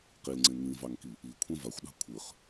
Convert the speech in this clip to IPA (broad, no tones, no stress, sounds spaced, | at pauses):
q i l ŋ͡ǀ ẽ ŋ ĩ v ɑ ŋ k i | i kʷʰ ẽ v a xʷ ɗ ɑ̤ kʷʰ ɯ χ